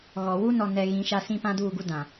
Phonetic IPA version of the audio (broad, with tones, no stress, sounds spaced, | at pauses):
ɣ ɔ˨ w u˦ n ɔ˨ n ɛ˨ ɣ ĩ˨˦ ʃ a˦ s ĩ˦ p ã˦ d uː˦˨ ɡ u˦ d ã˨